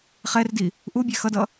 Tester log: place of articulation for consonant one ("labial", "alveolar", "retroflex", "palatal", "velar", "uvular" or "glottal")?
uvular